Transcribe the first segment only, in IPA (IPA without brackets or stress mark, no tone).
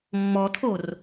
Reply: mː